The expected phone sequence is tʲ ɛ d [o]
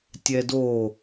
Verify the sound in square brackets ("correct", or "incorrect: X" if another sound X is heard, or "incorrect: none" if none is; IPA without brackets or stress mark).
correct